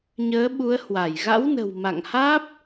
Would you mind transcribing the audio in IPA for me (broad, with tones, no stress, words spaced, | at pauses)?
ɲəː˨˦ɓu˨˦ə̯hwa˧˩j ɣa̰˧˥wnə̤˨˩w ma̰˧˨ŋhaː˦˥p̚